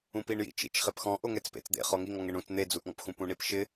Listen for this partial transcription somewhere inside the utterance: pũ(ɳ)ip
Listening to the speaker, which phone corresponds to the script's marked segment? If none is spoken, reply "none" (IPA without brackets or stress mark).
ɳ